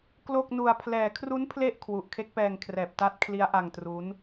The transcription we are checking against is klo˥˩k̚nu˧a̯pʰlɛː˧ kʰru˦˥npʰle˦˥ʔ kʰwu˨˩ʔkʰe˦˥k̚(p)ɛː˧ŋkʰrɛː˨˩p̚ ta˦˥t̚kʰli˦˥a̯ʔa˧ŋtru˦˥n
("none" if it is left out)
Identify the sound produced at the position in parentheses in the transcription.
p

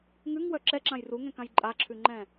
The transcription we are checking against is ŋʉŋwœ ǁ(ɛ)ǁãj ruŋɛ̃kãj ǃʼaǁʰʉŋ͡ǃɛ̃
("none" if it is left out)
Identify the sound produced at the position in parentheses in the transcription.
ɛ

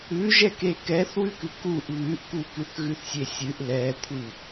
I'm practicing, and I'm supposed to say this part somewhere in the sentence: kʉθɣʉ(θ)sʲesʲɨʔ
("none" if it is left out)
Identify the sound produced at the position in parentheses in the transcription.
θ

